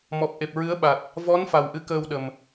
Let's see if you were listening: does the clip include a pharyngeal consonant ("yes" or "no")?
no